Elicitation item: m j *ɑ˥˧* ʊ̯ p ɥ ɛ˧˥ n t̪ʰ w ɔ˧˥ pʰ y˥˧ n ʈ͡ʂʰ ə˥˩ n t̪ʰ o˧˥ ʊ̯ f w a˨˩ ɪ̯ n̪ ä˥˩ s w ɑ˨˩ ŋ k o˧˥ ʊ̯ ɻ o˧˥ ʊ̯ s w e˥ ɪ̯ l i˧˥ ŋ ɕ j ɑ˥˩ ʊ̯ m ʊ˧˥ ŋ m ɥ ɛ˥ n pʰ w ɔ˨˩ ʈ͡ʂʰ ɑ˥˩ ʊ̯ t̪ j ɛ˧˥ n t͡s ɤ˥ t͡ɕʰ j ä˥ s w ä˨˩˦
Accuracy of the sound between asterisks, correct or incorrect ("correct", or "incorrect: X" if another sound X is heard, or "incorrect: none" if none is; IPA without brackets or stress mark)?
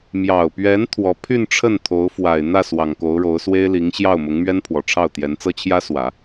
incorrect: ɑ˨˩